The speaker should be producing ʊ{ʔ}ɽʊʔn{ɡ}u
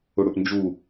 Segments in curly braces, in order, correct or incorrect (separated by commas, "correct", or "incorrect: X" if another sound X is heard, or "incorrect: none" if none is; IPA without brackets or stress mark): incorrect: none, incorrect: d͡ʒ